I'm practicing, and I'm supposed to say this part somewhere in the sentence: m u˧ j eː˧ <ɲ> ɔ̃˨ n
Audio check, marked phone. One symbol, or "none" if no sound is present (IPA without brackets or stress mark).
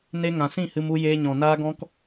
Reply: ɲ